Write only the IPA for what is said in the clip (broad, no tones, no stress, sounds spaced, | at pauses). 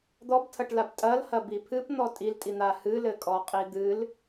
d̪ ɔ b tʰ ɐ ʈ l a b tʼ ɐ l h ɐ b i pʰ ɨ p n̪ ɔ tʼ i l tʼ i n̪ a h ɨ l ɘ kʼ ɔ qʼ i d̪ ɨ l